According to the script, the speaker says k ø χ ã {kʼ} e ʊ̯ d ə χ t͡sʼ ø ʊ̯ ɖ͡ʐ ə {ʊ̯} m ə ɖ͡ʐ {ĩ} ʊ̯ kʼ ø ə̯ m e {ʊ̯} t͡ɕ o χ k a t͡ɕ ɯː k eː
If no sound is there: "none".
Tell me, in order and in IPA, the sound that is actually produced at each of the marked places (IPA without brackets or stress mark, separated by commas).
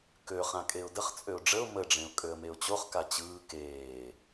kʼ, ʊ̯, ẽ, ʊ̯